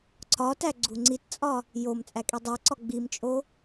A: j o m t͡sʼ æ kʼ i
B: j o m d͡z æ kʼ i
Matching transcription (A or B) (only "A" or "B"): A